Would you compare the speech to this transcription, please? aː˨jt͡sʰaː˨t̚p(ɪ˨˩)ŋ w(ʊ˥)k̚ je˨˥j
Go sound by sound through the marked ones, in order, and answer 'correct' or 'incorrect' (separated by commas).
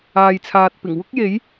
correct, correct